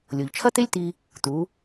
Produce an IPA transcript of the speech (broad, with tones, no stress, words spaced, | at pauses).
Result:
lʲo˩ʎt͡ʃʰɐ˥ t̪e˥lʲt̪i˧ | t̪u˩˧